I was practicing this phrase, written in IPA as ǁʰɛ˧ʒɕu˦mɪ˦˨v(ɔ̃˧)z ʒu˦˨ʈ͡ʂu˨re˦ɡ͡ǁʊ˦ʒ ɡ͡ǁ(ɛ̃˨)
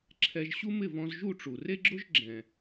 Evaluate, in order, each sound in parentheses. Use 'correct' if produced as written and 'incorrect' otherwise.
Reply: correct, correct

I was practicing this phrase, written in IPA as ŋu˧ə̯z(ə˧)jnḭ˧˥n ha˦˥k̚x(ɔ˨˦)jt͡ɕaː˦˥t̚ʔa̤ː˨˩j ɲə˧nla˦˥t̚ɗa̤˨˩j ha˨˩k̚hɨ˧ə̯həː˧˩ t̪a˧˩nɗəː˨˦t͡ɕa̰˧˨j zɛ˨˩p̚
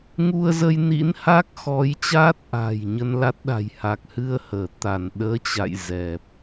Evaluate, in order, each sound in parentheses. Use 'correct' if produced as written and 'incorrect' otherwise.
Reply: correct, correct

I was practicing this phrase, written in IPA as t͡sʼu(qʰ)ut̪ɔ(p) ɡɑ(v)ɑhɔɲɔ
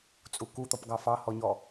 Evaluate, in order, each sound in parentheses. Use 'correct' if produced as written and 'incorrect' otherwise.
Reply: incorrect, correct, incorrect

